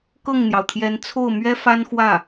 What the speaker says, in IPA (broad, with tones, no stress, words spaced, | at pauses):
kɤ˥˩ŋn̪jɑ˩ʊ̯t̪ʰjɛ˧˥n t͡sʰo˥˩ʊ̯mɥɛ˥ fa˥nxwä˥˩